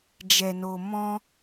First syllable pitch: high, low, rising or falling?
low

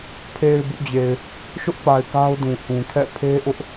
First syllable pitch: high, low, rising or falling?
low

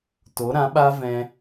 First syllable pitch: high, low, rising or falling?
rising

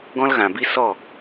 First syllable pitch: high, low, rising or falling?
high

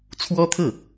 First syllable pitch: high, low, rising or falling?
high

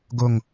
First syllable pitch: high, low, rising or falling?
falling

